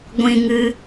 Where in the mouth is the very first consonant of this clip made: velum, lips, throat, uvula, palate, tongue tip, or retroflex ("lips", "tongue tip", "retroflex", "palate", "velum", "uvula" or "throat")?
velum